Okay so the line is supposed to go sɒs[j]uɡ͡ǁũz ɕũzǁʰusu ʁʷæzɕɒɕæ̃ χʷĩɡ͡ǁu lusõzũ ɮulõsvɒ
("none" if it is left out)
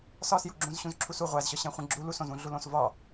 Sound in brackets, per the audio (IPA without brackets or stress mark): j